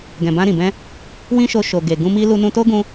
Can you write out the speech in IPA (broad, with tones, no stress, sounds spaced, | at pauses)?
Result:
ɡ ɛ̃˨ b ã˧ ɾ ĩ˨ b ɛ̃˧ | w ĩ˦ ʃ o˧ ʃ o˨ ɡ e˨ ɡ ũ˧ m i˧ l u˧ n ũ˧ t o˦ ɡ ũ˧